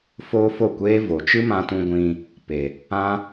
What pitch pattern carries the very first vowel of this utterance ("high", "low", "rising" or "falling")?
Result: high